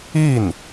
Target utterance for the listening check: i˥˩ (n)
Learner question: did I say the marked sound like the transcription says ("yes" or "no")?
yes